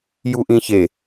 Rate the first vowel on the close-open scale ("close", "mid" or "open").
close